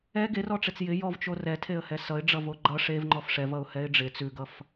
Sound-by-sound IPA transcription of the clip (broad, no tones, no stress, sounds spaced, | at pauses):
ɛ ɡ e r ɔ ʈ͡ʂ e t͡s j ɪ j ɔ v t͡ʃ o r ɛ tʰ e ə̯ h ɛ s ʌ ɪ̯ ɖ͡ʐ ʌ v o ɡ͡ǃ ʌ ʂ e v ŋ͡ǃ ɔ f ʂ ɛ v ʌ ʊ̯ h ɛ ɪ̯ ɖ͡ʐ ɪ t͡s ʉ ɡ ʌ f